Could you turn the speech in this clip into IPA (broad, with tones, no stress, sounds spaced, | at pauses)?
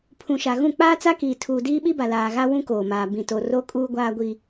pʰ ũ˨ ʃ a˨ ɣ ũ˦˨ k͡p aː˦ t͡s a˦ k iː˨ tʰ uː˨ d iː˦ ɓ i˦ b a˨ l aː˨ ɣ a˦ w ũ˦ k oː˨ m aː˨ b ĩ˨ t o˨ r o˦ kʼ uː˦ ɡʷ aː˦ ɡʷ i˦